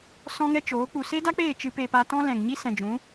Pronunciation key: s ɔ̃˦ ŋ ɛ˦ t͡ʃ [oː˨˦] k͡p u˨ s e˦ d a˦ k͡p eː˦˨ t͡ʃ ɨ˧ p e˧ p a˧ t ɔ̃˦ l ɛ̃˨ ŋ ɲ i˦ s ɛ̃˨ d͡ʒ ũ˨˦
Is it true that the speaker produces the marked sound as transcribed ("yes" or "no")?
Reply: yes